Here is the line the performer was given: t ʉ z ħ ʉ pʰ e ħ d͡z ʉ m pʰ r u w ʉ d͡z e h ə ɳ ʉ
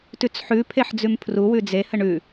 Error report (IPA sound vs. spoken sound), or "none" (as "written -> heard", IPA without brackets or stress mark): z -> t͡s